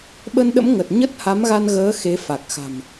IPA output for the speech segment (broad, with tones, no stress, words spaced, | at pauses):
ɓə˧nɗə̰˧˥m ŋə˨˩t̚ ɲə˦˥t̚ha˨˦mɣa˧nɣəː˨˦ xe˨˦fa˨˩k̚xa̤˨˩m